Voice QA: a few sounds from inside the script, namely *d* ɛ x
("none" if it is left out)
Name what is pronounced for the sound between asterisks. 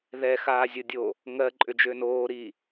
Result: ð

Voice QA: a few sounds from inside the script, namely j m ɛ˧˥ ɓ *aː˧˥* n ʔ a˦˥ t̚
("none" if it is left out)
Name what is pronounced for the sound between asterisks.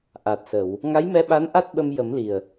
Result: a˧˥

